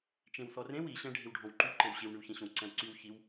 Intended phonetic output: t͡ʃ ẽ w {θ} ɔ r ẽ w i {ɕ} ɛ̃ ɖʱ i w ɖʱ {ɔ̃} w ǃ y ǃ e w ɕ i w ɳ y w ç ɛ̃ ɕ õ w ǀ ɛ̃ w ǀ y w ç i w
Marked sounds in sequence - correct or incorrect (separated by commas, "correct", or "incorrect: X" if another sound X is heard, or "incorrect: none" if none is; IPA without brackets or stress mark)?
correct, correct, correct